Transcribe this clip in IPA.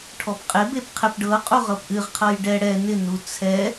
ʈʰɔpqʼɪ bepqʰɪp ɖɤ qʼuʁɤpʔɨʁ qʰɤjɖɛ ɽɛ nɪ nut͡sʰɛ

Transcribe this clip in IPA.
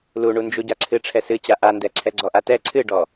luɳund͡ʒuɟa ǀʰɨ ʈ͡ʂʰɛsɨt͡ɕa ʔandɛ ǀʰɛɡ͡ǀɔʔatɛ ǀʰɨɖɔ

